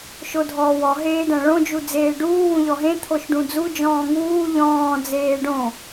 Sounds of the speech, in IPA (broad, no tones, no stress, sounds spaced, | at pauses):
ʃ o dʱ ɔː w ɔ ɦ eː d æ̃ ɭ õ d͡ʒ u d͡z eː ɖ uː w ũ ʎ ɔ ɦ ẽ t̪ʰ o ʃ ɖ ũ d͡z u d͡ʒ ɔ̃ː ŋ uː ʎ ɔ̃ː d͡z eː ɖ õ